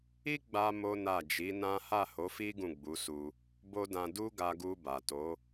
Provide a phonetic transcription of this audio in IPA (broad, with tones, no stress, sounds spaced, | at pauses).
i˦ ɡ͡b a˧ m o˦ n a˦˨ d͡ʒ i˨˦ n ã˦ h a˦˨ h o˨˦ f i˦ ɡ ũ˦˨ ɡ͡b u˨˦ s u˧ | b o˦ d ã˧ d u˦ ɡ a˧ ɡ u˧ b a˨ t o˨˦